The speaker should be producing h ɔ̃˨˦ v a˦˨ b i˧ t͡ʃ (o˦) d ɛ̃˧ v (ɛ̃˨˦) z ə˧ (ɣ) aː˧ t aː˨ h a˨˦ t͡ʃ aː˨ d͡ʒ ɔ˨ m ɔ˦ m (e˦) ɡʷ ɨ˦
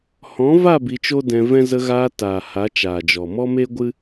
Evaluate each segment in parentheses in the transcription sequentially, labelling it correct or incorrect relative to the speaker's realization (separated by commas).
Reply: correct, incorrect, correct, correct